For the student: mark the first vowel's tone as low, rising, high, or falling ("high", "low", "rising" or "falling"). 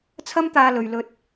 high